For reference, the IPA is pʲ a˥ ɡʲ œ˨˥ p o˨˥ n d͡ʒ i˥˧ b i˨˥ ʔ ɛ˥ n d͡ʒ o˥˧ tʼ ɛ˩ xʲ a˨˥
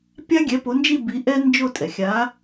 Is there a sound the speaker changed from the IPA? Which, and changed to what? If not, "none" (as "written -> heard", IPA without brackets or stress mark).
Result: œ˨˥ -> ɛ˨˥